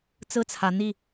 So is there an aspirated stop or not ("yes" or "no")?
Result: yes